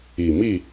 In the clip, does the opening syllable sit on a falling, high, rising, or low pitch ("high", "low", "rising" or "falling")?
low